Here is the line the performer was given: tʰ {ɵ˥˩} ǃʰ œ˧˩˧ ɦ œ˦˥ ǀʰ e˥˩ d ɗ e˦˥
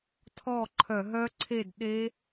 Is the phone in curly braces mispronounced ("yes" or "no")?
yes